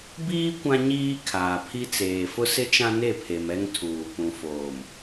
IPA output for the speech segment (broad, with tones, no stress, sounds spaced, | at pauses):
b iː˦ kʷ ã˦ ɲ iː˦ kʰ aː˨ pʰ i˦ t͡s eː˨ f ʊ˦ s ɪ˦ t͡ʃ ã˦ n e˦˨ pʰ e˨ m ɛ˦ ŋ tʰ uː˨ p ũ˨ f oː˨ m